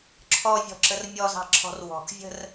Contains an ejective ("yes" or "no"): no